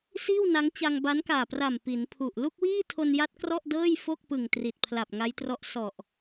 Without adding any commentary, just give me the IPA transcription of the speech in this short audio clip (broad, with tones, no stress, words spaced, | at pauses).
siː˥˩w na˦˥ŋ t͡ɕa˧ŋba˦˥nkaː˨˩pra˨˩m pi˩˦npʰu˨˩ʔ lu˥˩k̚wiː˥˩tʰo˧nja˦˥t̚ krɔ˥˩ʔdɤː˥˩j fo˥˩k̚pɯ˨˩ŋ tri˨˩t̚pʰla˨˩p̚ŋa˦˥jtrɔ˦˥ʔ sɔ˨˩ʔ